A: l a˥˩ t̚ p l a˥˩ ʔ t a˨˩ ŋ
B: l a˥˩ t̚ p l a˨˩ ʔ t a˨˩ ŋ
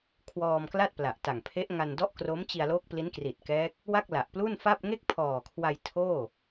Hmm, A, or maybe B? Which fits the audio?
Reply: B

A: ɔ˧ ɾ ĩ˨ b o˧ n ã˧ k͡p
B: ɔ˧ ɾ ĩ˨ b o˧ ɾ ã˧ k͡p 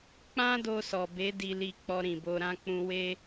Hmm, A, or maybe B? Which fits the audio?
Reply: B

